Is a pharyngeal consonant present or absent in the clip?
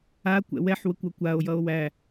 present